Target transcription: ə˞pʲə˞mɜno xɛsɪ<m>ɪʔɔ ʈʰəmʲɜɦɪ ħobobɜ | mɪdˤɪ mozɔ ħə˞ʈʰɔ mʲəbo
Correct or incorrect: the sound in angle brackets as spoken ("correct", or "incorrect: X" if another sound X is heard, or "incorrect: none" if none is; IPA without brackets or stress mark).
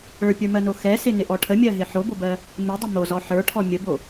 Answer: incorrect: n